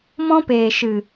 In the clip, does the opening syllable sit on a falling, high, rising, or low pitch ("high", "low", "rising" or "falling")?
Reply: high